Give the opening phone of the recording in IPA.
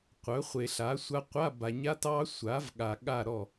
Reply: qʷ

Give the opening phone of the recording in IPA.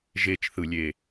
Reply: ʒ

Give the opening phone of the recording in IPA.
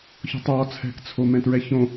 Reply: ç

